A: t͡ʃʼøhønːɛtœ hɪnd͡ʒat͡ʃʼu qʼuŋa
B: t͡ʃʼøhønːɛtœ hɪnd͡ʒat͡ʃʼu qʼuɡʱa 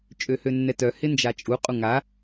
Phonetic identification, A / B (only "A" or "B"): A